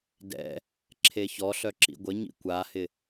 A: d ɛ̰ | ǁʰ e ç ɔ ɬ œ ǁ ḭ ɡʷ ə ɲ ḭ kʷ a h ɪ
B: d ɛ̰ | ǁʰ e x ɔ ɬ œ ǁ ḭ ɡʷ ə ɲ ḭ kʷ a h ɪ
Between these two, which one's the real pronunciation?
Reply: A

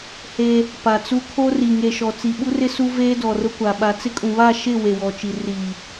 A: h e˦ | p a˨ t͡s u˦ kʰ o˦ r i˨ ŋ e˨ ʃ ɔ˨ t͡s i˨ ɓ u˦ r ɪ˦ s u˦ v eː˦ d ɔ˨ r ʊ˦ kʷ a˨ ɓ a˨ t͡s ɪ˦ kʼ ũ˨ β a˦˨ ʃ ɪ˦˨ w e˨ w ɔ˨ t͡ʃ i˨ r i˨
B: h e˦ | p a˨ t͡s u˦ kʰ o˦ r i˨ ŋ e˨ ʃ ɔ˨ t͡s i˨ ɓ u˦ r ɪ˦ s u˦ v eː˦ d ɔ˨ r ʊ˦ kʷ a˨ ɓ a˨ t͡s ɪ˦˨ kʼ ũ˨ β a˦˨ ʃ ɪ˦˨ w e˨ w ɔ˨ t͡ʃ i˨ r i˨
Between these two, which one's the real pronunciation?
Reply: A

